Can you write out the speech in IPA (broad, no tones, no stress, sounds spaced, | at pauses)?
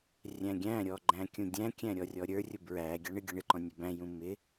rʲ æ̃ ɡʲ æ̃ ɾʲ ɔ ɡ͡ǃ æ̃ kʲ ũ dʲ æ̃ kʲ æ̃ ɾʲ ɔ rʲ ɔ ɾʲ ə˞ rʲ ʊ b ɹ æ ɡʲ ɑ ɳ ɪ ɡʲ ʌ ɳ ɪ ǃ ɔ̃ nʲ u b æ̃ j ũ m ɪ